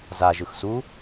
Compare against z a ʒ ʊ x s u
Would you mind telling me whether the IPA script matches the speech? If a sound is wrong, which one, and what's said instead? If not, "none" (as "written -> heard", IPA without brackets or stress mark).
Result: ʊ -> ɯ